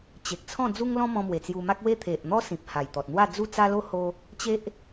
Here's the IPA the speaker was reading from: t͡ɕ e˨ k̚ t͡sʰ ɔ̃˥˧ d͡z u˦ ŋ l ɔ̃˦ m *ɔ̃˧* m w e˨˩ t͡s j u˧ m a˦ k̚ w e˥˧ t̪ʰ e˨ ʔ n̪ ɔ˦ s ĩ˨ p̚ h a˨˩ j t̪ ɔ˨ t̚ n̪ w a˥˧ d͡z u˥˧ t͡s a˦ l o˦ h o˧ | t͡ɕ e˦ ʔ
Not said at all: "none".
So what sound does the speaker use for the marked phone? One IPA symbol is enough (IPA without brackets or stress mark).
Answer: ɔ̃˧